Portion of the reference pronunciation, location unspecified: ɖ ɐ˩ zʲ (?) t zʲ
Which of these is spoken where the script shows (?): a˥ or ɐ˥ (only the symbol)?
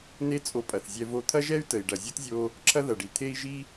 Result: ɐ˥